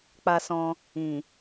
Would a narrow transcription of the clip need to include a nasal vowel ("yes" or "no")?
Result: yes